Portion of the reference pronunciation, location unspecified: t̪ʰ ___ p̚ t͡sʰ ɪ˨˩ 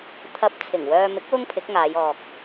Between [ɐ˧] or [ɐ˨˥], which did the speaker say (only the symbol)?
ɐ˧